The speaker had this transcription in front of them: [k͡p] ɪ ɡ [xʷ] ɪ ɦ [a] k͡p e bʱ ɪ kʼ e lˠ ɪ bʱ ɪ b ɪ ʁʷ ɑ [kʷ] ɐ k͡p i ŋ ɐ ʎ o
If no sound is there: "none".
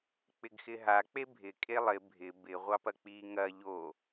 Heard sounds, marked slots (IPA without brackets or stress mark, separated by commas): k͡p, x, a, p